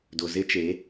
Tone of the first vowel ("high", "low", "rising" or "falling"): low